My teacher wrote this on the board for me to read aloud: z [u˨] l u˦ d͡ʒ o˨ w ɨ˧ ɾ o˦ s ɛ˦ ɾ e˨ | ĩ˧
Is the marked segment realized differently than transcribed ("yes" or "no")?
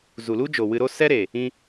no